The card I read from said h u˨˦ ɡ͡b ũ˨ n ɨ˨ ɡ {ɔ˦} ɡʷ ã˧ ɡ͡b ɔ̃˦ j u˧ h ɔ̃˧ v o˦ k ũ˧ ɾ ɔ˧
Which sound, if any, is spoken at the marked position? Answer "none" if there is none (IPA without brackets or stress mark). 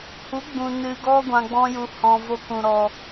ɔ˦